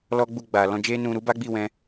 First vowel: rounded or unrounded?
rounded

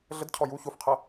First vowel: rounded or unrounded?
unrounded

